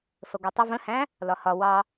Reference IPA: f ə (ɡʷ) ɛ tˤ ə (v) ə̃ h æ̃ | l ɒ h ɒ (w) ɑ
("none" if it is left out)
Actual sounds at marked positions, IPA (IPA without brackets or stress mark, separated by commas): ɡʷ, v, w